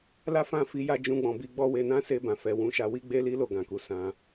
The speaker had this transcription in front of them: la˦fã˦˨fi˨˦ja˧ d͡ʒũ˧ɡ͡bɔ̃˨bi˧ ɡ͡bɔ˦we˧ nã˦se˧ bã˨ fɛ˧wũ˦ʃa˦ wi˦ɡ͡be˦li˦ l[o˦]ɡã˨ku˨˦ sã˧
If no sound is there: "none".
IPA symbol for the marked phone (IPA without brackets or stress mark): o˧